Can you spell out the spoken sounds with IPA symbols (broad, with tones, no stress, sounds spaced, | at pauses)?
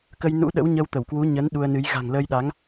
k ə˧ j n ṵ˧˥ ɗ ə̰˧˥ w ɲ ə˧ w t̪ ə˧˩ w k w u˨˦ ɲ ə˨˦ n ɗ u˧ ə̯ n ɨ˨˦ j ɣ a̤˨˩ ŋ l əː˧ j ɗ a˨˦ ŋ